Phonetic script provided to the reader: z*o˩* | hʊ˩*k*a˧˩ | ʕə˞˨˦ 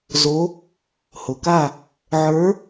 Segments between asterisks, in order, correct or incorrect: incorrect, correct

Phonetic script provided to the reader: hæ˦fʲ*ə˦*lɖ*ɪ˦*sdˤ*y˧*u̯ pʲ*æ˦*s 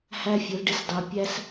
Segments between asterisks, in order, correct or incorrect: incorrect, correct, incorrect, correct

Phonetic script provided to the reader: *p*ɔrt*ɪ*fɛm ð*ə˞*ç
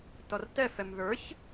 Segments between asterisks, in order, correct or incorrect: incorrect, incorrect, correct

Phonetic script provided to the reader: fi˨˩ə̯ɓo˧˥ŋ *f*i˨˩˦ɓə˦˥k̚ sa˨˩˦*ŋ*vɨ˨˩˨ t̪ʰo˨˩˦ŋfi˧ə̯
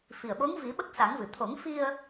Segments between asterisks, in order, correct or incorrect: incorrect, correct

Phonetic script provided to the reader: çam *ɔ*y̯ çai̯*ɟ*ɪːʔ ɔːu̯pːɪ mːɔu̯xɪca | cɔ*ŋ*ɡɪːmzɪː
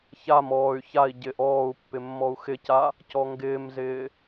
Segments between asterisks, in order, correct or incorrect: incorrect, correct, correct

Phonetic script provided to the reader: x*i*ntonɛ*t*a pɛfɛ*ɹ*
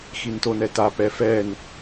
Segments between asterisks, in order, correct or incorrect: correct, correct, incorrect

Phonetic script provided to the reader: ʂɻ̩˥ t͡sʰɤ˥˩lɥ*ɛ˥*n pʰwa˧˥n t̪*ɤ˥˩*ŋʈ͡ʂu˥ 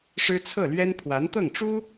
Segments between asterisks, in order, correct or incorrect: correct, correct

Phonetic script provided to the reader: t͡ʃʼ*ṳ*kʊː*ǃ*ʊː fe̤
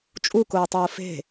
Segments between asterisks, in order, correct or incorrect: incorrect, incorrect

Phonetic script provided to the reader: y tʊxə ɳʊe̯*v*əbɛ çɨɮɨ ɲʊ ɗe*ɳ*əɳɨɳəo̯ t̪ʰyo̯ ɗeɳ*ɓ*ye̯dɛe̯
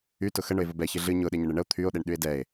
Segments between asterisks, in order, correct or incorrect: correct, incorrect, incorrect

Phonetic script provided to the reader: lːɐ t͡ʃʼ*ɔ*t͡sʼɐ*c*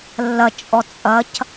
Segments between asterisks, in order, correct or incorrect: correct, correct

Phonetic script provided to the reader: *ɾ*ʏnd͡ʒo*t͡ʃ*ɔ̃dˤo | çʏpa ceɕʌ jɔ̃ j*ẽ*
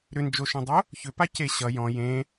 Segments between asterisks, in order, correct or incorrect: correct, incorrect, correct

